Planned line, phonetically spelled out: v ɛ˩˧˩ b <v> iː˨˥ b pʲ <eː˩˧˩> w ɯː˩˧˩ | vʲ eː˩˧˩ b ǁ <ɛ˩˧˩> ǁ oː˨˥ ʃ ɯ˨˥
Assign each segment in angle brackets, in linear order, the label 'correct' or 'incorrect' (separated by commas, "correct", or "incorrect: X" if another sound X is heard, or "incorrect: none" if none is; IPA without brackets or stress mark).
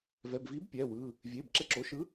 correct, incorrect: ɛː˩˧˩, incorrect: ɛ˦